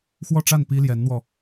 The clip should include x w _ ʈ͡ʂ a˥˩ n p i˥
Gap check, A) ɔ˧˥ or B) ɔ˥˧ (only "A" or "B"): B